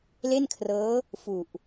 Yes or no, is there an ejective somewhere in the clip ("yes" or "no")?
no